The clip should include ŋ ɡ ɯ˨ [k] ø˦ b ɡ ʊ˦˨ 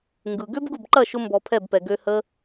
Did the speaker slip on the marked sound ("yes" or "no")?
yes